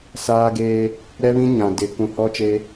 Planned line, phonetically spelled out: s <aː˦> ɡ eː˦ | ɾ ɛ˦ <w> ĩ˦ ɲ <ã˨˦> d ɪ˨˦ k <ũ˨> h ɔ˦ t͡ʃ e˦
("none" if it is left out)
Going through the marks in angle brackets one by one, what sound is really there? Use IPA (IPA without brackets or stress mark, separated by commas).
aː˦, β, ã˨, ũ˨